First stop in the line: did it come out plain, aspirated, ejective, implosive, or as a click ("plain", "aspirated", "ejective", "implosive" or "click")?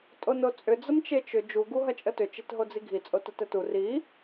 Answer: ejective